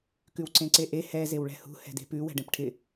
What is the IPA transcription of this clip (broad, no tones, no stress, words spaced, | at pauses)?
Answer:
kʉwǀẽǀeʔe hɛ zewɭɛ̤hṳ hɛ̤de̤pʉ wɛ̤ɖẽpʈʰɪ